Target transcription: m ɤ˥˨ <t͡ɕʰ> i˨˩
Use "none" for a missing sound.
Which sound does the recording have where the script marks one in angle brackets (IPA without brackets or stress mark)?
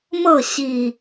ɕ